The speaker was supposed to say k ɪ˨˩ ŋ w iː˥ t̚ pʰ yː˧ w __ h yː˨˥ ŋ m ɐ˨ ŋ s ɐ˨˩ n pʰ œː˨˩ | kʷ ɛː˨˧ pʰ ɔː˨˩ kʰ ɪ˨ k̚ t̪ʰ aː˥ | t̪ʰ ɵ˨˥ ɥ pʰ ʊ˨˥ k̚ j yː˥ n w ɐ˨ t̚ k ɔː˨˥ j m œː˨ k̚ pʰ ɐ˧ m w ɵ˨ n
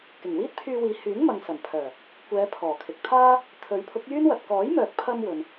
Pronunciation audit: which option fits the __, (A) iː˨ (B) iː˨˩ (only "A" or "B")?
A